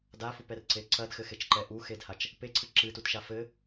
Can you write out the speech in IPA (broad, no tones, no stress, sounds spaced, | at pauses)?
d a f u p ɛ r ǀ e ǀ ɐ d x ɘ x e t͡ʃ ǃ ɛ ʔ u x e d h a t͡ʃ | p e ǀʰ ɨ ǁ ɨ t u t ʃ a f ɘ